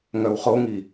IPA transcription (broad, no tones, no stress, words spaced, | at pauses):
ŋœwχoŋi